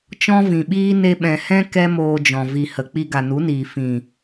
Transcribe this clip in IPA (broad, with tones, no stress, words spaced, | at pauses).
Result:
t͡ʃɔ̃˦vĩ˨ɓiː˦ ne˧ɓɛ̃˨hɛ̃˦ kɛ˦ moː˧d͡ʒɔ̃˨ vi˨hə˨ k͡pi˧ɡa˨nu˨˦niː˨ fĩ˨